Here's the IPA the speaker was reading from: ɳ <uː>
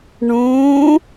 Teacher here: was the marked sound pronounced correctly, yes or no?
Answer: no